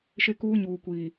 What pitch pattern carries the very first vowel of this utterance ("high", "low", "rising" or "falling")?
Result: high